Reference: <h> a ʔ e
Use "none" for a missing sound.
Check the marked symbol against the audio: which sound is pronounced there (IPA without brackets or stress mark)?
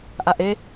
ʔ